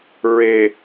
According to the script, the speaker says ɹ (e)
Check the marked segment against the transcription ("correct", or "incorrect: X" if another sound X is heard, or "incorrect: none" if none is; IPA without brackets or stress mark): correct